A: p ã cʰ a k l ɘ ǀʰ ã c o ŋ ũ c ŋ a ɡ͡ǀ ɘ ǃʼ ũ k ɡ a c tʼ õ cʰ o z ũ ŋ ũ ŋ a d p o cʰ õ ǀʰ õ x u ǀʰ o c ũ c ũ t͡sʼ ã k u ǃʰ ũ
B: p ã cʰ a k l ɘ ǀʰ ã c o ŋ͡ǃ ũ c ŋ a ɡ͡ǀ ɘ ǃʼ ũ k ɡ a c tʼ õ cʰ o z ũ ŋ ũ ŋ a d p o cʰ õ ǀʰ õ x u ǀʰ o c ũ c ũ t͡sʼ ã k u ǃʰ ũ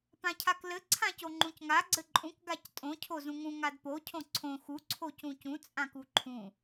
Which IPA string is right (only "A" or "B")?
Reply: B